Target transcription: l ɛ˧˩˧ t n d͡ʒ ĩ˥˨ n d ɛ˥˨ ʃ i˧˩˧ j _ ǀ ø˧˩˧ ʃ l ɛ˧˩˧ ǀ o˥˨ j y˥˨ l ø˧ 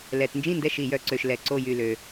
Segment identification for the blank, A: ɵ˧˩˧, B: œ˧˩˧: B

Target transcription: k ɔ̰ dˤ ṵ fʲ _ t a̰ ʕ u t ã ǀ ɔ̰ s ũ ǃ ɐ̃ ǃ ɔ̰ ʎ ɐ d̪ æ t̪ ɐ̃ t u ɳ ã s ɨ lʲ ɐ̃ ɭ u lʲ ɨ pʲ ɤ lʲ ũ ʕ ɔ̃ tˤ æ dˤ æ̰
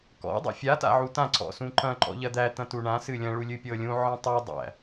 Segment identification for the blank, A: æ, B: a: B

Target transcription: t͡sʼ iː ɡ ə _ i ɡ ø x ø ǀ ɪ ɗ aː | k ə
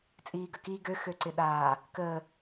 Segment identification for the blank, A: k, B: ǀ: A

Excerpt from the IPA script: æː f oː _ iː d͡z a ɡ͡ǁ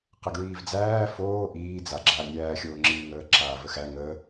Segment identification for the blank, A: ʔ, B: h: A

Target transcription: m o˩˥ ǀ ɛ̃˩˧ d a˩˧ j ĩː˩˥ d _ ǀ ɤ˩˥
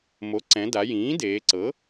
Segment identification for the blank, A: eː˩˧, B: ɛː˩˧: A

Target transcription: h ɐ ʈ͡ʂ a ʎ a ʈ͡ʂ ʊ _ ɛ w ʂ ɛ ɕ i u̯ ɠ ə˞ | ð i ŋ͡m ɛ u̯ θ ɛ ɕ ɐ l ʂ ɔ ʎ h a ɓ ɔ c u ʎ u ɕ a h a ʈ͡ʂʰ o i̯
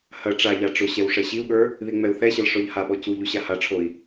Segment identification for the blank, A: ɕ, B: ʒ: A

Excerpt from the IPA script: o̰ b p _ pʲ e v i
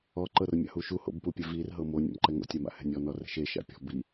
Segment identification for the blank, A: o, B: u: B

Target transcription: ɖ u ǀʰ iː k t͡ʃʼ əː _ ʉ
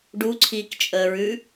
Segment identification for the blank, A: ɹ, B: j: A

